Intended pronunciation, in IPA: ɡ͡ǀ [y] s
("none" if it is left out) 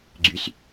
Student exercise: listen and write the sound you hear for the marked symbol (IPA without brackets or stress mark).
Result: y